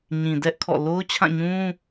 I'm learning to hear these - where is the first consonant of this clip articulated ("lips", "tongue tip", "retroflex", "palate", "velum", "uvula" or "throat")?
palate